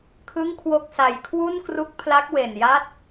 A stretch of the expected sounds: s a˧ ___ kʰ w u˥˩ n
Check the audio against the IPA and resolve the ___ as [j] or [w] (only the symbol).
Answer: j